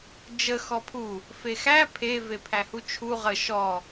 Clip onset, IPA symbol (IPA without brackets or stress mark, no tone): d͡ʒ